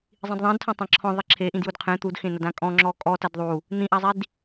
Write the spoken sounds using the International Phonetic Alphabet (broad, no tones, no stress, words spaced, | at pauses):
zˤĩdðˤĩdtʰɔ̃ tˤãǁʰɔ̃ ðˤiǁʰeʔĩd judqʰẽ t̪udxẽnɐd ãkʼɔ̃ ŋ͡ǁɔkʼɔ tɐdðˤu | n̪ĩʔazˤid